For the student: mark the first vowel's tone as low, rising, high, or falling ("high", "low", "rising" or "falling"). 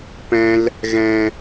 high